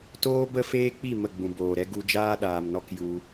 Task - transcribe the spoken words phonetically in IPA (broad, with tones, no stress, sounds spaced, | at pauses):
t oː˦ b ə˦ f eː˦ k͡p i˦˨ m ə˦˨ ɡ͡b ũ˨ b oː˨ ɾ ɛ˦ ɡ u˧ d͡ʒ aː˦ ɗ aː˨ m n ɔ˦ k j u˧